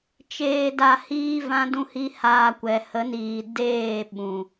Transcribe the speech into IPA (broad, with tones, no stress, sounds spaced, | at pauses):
t͡ʃ eː˧ d a˧ h iː˦ v ã˦ d ũ˦ h i˦ h aː˧ kʷ ɛ˨ h ə˨˦ n iː˨ d eː˦˨ ɓ ũ˨